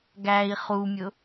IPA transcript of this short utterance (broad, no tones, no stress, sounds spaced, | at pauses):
ɡ æ i̯ χ u mʲ ʊ